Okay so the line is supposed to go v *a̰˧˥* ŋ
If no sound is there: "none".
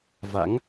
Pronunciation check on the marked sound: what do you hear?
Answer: a̰˧˥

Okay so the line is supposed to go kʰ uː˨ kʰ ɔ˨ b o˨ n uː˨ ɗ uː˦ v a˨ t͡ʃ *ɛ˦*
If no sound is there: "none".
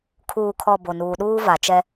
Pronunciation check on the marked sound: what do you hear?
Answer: ɛ˦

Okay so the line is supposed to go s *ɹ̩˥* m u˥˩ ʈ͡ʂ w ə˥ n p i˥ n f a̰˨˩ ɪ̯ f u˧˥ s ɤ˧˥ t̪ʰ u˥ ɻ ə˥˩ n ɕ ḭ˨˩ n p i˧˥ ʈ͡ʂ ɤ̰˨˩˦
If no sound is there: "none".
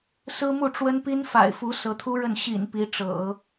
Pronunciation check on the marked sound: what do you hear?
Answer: ɹ̩˥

